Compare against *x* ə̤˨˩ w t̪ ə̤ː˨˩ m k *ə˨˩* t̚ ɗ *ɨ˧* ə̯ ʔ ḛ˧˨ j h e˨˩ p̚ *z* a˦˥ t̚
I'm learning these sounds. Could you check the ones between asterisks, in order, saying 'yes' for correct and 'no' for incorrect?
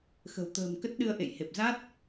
yes, no, yes, yes

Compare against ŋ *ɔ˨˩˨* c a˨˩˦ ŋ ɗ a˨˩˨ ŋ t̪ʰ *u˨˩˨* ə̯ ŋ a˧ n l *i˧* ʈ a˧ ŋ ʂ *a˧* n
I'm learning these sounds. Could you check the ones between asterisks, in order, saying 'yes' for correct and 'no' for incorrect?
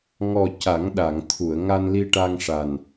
no, yes, yes, no

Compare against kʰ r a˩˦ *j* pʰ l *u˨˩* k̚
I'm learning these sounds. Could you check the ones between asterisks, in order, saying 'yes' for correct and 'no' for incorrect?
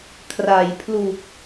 yes, yes

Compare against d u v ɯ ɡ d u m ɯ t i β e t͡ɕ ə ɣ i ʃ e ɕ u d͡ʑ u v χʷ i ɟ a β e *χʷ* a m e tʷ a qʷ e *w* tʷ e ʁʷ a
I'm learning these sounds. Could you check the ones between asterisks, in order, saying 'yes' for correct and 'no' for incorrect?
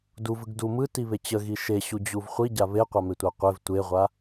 no, no

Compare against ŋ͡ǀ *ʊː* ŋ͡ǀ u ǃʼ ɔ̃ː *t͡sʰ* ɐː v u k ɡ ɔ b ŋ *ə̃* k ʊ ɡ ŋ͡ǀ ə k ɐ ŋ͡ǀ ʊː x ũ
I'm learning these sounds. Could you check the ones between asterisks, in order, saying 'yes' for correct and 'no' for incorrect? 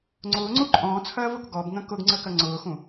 yes, yes, yes

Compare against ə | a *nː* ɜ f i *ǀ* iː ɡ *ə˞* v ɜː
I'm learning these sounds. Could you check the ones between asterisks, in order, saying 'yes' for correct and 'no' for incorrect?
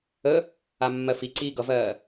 no, yes, no

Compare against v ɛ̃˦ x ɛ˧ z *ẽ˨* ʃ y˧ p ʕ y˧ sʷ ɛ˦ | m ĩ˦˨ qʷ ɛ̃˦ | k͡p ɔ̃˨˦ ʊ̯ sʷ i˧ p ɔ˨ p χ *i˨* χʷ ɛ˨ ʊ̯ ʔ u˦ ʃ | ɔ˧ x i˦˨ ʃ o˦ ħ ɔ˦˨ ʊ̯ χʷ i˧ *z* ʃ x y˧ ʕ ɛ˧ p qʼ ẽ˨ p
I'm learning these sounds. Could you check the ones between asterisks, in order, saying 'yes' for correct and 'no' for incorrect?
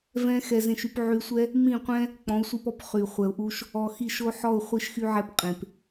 no, no, no

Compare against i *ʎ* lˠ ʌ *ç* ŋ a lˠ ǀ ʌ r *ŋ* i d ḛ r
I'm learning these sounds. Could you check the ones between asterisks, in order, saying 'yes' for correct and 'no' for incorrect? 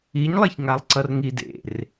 no, yes, yes

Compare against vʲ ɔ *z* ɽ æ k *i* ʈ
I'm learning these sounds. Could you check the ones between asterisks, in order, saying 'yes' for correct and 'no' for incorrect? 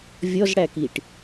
yes, yes

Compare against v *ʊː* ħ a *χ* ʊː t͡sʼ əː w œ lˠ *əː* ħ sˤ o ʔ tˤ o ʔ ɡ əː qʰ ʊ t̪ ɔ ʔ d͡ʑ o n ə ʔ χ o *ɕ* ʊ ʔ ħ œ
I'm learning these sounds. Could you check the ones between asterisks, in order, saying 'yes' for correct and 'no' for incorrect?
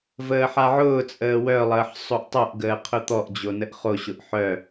no, no, yes, yes

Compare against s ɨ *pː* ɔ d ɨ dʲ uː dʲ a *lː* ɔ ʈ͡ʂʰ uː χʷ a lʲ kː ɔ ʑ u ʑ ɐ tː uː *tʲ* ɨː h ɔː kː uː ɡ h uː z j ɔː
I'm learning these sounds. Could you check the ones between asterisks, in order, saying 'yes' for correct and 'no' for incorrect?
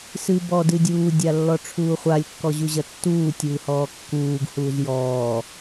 no, yes, yes

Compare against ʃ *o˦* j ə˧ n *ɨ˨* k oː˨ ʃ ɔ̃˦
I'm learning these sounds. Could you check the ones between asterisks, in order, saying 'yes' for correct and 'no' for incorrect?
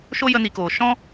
yes, no

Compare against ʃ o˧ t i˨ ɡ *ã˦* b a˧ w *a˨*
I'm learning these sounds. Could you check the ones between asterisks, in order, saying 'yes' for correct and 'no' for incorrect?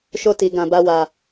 no, yes

